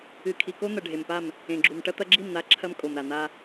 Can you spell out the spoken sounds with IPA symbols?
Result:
ɨ˨ kʰ i˨ k o˦ n̪ ɐ˨ ɖʱ e˨ m p a˦˨ m | ẽ˨ ɡ͡ǁ u˨ m ʈ ɐ˦ t̪ ɐ˦ ɡ͡ǁ i˦˨ m n̪ a˦ ǁʰ ɐ˦ m kʼ o˨ m ɾ a˨ n̪ a˦

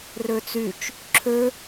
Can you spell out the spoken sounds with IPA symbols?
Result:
r ø t͡s y t͡ʃ | ǁʰ ø

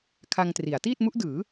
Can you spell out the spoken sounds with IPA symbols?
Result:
kʰ a˧ ŋ t r i˩˦ a̯ t iː˥˩ t̚ m u˦˥ ʔ d ɯː˩˦

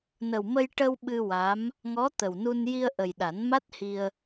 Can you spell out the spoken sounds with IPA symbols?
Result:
n ə˨˩ w m ə˧ j ʈ ə˧ w ɓ ɨ˧ w a˧˥ m | ŋ ɔ˧˥ t̪ ə˨˩ w n u˧ n j i˧ ə̯ ʔ ə˨˩ j ɗ a˨˩˦ n m a˦˥ t̚ h i˧ ə̯

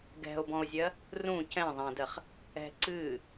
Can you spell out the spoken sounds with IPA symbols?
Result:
ɡ ɛ̤ o̯ b ɔ̃ o̯ zʲ ɜ | r ũ c ɛ̃ ðˤ ɛ̃ d ɜ χ | ɛ̤ ǀ ɨː

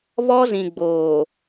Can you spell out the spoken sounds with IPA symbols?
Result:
β ɔ˦ z ĩ˨ ɡ͡b oː˨

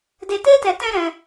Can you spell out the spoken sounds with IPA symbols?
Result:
d e˧ t e˦ t ɛ˧ t ɛ̃˦ ɾ ɛ̃˧

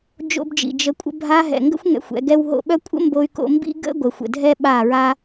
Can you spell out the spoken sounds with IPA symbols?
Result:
d͡ʒ o̰˧ b d͡ʒ ḭ˨ d͡ʒ ə˧ kʷʼ ə̰˧ bʱ a˧ ɦ ɛ̰˨ ŋ ɡ ə̰˦ xʷ ŋ ɛ̰˧ xʷ ɛ̰˨˦ ɡ ɛ˦ w ɦ o̰˧ ɓ œ˦ kʷʼ ə̰˦ m b o˧ y̯ k o̰˧ m b ḭ˦ ɡ ə̰˦ ɡʷ ə˨ xʷ ə̰˨ dʱ ɛ˦ ɓ a˦˨ ɹ a˦

